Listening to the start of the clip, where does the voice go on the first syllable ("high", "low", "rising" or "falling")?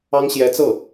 high